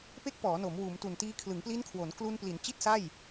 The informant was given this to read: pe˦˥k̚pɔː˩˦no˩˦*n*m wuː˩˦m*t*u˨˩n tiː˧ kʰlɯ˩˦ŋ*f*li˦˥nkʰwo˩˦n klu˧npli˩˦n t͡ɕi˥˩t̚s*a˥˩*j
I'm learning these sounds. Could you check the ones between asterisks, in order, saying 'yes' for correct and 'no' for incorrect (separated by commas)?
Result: no, yes, no, yes